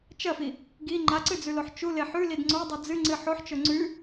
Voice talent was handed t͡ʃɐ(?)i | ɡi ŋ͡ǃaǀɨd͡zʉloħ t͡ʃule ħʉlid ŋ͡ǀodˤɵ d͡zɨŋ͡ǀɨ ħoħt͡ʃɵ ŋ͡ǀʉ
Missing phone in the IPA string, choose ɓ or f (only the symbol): f